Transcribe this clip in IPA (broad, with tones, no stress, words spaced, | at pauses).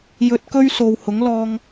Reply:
jɵ˧t̚kɵ˥ɥ so˨whʊ˨˥ŋlɔː˧ŋ